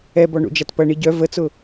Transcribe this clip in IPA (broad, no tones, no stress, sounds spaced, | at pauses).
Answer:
ɛ b ɔ ɳ ṵ d͡ʒ a t p ɐ ɳ i ɟ œ v ə t͡s ʊ